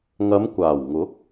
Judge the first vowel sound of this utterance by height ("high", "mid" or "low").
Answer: low